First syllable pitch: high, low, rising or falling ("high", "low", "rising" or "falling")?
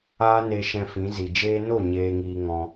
high